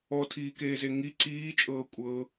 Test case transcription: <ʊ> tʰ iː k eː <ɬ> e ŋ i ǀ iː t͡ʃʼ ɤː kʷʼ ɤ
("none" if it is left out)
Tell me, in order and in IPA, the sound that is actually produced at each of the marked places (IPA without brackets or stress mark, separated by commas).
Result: ɔ, z